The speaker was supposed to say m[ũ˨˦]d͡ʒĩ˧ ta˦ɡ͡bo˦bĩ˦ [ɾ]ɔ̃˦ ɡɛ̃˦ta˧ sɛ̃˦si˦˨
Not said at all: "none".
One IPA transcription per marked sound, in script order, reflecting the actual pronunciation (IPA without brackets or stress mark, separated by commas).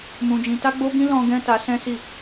ũ˧, l